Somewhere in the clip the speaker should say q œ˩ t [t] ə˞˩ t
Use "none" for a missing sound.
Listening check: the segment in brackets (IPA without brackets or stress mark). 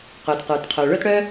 q